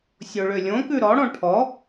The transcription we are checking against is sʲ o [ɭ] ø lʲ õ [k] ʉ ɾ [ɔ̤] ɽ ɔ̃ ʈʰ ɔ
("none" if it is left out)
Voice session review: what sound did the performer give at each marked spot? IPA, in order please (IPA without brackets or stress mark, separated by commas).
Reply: ɭ, k, ɔ